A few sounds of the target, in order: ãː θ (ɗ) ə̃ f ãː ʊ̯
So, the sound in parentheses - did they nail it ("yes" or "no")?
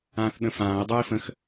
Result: yes